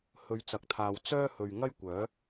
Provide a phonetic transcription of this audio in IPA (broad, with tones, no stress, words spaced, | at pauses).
hɵ˨˧ɥt͡sɐ˨k̚t̪ʰaː˨w t͡sœː˥hɵ˨ɥ ŋɐ˥jkʷœː˨˥